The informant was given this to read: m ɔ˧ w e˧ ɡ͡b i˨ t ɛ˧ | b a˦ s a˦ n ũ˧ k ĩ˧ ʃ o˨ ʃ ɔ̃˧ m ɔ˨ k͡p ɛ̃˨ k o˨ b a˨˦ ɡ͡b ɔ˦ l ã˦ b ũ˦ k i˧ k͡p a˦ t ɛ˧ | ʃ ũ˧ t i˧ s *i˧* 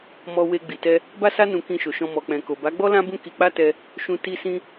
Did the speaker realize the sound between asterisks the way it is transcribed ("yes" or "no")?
no